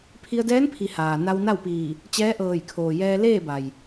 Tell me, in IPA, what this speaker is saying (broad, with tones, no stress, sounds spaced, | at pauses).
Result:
pʰ i˧ ə̯ d ɛː˧˥ n pʰ i˩˧ h aː˩ n a˧ w n a˥˨ w p iː˧˩ | t͡ɕ ɛː˧˥ ʔ ɤː˧˩ j kʰ oː˩ j ɛː˧ l eː˥˨ b a˩ j